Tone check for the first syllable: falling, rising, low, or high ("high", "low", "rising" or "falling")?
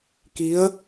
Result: rising